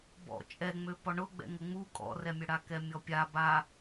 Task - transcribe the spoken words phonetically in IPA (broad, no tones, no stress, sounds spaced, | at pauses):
b ɔ̰ t͡ʃʼ ɛ ŋ͡m ø p ɔ ɳ ʊ ɡ͡b ɛ̰ ŋ ə ŋ͡m u kʼ ɔ̰ r ɛ mʲ ʊ ɽ a k ɛ mʲ ɔ pʲ a b a